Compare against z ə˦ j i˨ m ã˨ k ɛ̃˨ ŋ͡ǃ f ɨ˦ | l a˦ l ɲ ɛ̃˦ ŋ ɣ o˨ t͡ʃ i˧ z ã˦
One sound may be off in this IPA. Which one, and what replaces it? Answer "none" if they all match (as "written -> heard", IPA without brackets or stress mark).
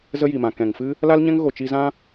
ŋ͡ǃ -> ŋ